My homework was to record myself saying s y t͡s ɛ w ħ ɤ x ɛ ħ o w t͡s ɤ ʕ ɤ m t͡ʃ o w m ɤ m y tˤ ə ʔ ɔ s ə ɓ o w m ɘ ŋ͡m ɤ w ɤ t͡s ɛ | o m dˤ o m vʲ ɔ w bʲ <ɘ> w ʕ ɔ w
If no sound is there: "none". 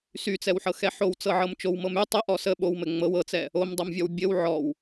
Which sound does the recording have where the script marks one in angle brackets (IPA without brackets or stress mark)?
ɘ